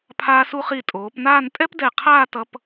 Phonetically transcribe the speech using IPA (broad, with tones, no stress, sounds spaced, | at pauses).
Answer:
pʰ aː˧ s u˧ χ i˧˩ tʼ oː˩˧ p n aː˥˧ n tʼ ɛ˥ p d ɛ˧˩ qʰ aː˥˧ t ʌ˧ p